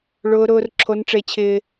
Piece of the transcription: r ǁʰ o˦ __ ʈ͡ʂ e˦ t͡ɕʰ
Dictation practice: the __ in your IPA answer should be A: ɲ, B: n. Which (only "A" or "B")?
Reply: B